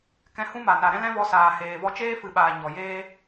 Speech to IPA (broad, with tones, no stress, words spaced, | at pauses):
kɛ̃˧hũ˦ma˨ na˨ɾɛ̃˦lɛ̃˦vɔ˧ saː˨heː˨vɔ˧ t͡ʃeː˦fɨ˨ɓaː˨ ɲɔ˨jeː˦